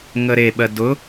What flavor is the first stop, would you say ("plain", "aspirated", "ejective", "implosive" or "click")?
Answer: implosive